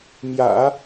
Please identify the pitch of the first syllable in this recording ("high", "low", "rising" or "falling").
low